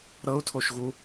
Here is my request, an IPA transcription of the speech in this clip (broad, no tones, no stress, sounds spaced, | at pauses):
ɾ ɤ u̯ tʰ o ʃ ɣ u